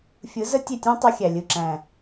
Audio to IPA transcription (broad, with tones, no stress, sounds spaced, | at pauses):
fʲ ɯ˨˦ z ə˦ tʲ e˦˨ tʲ ẽ˦ tˤ ɯ˦ xʲ æ˨ lʲ ɯ˨ ǁ æ̃˨